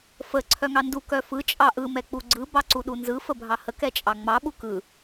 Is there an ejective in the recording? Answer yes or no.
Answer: yes